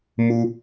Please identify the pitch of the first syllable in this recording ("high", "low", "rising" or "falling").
high